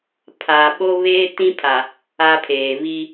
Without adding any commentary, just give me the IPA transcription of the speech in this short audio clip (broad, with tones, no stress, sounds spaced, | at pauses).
pʰ a˨ ɓ o˦ β eː˦ t ĩ˦ pʰ a˨ | a˦ pʰ eː˨ β i˦